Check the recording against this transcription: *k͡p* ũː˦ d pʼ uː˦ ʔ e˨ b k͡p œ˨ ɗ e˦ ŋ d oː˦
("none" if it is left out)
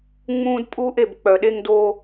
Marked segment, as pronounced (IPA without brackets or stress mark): ŋ͡m